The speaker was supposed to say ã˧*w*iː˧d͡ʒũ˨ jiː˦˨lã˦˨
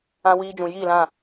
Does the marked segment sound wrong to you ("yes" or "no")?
no